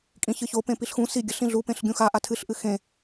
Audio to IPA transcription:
kʼ ĩ ç ɨ ç o p ẽ p i ɬ x ũ s i ɡʲ ɐ ɬ ĩ ɮ u p ẽ ɬ ɡʲ ũ x a ʔ a tʰ ɨ ɬ ʔ ɨ x ẽ

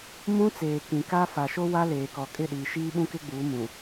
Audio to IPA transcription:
m ũ˦ t͡s eː˨ k ĩ˨ k a˦ f a˨ ʃ o˦ w a˦ l eː˨ k ɔ˨ kʼ ɪ˦˨ ɗ iː˨ ʃ iː˦ ɓ ũ˦ k ɪ˦ ɡ͡b uː˨˦ m ũ˨

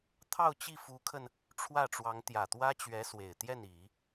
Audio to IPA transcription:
t̪ʰ ɑ˥˧ ʊ̯ t͡ɕ i˥˩ f u˧˥ kʰ ə˧ n | ʈ͡ʂʰ w ä˥˩ ʈ͡ʂ w ɑ˧˥ ŋ t̪ j ä˨˩ t̪ w ä˥ t͡ɕ ɥ ɛ˧˥ s w e˨˩ ɪ̯ t̪ j ɛ˥˩ n i˨˩˦

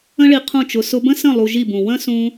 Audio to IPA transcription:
ə̃˦ ɭ i˧ qʰ ũ˦˨ t͡ʃ ʊ˧ s ʊ˧ b ə̃˦ s ə̃˦˨ lˠ u˧ ʒ i˦˨ b ũ˨ w ə̃˦ s ũ˧

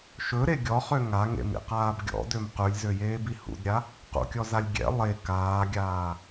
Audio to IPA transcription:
ʃ ɵ ɾ e ɡʲ ɔ χ ø ŋ a ŋ ḛ m ḭ q aː b ɡʲ ɔ̰ d ø m q ʉ lʲ z ø j eː b i h ṵ d ɾʲ a | q ṵ kʲ ɔ z a lʲ ɡʲ ɛ̰ lˠ e k aː ɡʲ aː

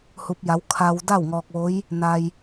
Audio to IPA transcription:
h u˧˥ p̚ j a˧˥ w kʰ a˧ w d a˥˨ w ŋ ɔː˧ k̚ ʋ o˧˥ j | n a˧ j

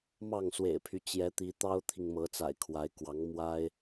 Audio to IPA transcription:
m ɑ˥˨ ŋ s w ḛ˨˩ ɪ̯ pʰ y˦ t͡ɕ j ɛ˨˦ t̪ i˨˦ t̪ ɑ˦ ʊ̯ t̪ʰ i˨ ŋ m ɤ˨˦ t͡s a̰˨˩ ɪ̯ kʰ w a˨˦ ɪ̯ k w ɑ˨˦ ŋ m w a˦ ɪ̯

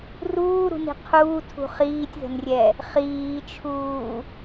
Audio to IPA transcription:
r uː ɾ ṳ n i̤ qʰ uː tʰ ṳ χ iː tʲ ð ə̤ n rʲ ɛ | χ iː t͡ʃʰ uː

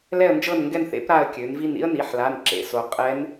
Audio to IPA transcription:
l ɛ˦˨ ə̯ n d͡ʒ ɤ˦˨ n ŋ ɡ ɛ˦˨ n θ ḛ˧˥ p ɾ a˦˨ ə̯ kʲ ø˩˧ n v i˦˨ n ḭ˥ ə̯ n i˩˧˩ ħ l a˩˧˩ n ǁ ḛ˩˧ s o˩˧ qʼ ɛ˧˥ n

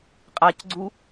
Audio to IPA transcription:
qʼ a c ɡ͡ǀ u

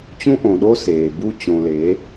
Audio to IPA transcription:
t͡ɕ ũ˦ ʔ õ˨ ɗ o˦ s eː˨ b u˦ t͡ɕ õ˨ l e˨˦

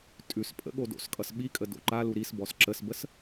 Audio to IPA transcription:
tʼ ʉ s pʼ ə̰ ɠ o d o̰ s kʼ ʌ s ɓ i kʼ ə d o̰ ǃ a l u ɾ i s b ɔ s ǁ ə s b ə s

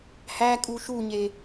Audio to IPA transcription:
h æ kʼ u ʃ u ɲ e

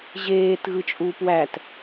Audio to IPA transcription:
ʑ eː t ɣ ɯ t͡ʃʼ uː p w æ t

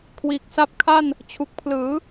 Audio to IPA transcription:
kʰ w iː˨˩ k̚ s a˦˥ p̚ kʰ a˥˩ n | t͡ɕʰ u˨˩ k̚ pʰ l ɯː˩˦

